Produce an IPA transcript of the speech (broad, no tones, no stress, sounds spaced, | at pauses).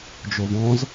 d͡ʒ o v ɔ̃ z